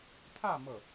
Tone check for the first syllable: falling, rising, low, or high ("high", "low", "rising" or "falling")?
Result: falling